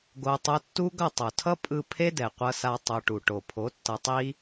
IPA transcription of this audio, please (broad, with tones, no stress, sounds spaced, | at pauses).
ɡ o˧ tˤ o˧ tː u˦ ɡ ʌ˦˨ tˤ o˨ tʰ ʌ˦ pʼ ɯ˧ pʰ e˦ d ɛ˨ qʷ ʌ˧ s a˧ tˤ o˧ ʈ u˨ ʈ o˨ pʰ o˨˦ tː ʌ˧ tˤ i˦